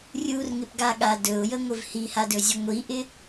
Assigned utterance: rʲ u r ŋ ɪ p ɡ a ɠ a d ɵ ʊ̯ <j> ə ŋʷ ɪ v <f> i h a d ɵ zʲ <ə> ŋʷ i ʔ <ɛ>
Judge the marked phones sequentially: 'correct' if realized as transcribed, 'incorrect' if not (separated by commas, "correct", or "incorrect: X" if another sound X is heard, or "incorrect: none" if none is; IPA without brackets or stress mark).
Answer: correct, incorrect: h, correct, incorrect: ɪ